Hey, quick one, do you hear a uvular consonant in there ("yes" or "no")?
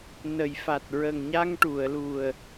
no